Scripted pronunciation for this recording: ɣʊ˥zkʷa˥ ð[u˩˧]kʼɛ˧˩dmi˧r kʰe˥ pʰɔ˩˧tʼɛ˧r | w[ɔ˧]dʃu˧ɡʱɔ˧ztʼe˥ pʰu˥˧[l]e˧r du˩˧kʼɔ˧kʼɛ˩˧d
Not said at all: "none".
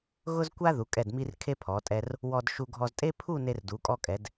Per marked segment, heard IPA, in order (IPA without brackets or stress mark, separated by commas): u˩˧, ɔ˧, n